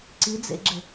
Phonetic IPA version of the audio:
ǀ i d͡z ḛ ɡ͡ǁ ɘ

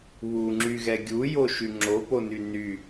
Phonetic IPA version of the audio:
β u ŋ͡ǁ y ɣ ɛ ɡʲ u j o ʃ y ŋ͡ǁ o p o n y n y

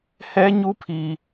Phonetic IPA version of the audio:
h ɛ˦ ɲ u˦ pʰ i˦

